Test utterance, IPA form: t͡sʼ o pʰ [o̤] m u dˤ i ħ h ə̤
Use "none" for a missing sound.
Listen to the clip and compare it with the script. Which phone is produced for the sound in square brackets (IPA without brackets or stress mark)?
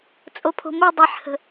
o̤